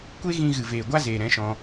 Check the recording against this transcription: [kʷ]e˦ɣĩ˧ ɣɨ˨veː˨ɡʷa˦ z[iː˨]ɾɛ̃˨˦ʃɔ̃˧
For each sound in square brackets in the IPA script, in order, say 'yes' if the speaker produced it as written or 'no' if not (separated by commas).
yes, no